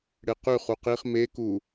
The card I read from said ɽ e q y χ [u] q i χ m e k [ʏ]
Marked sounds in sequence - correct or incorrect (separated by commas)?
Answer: correct, incorrect